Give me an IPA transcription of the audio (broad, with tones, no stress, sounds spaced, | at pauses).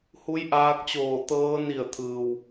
h u˧˥ j ʔ aː˧ k̚ t͡ɕ oː˧˩ t̪ ɤː˧ n i˧˩ ə̯ t̪ʰ ɯː˩ w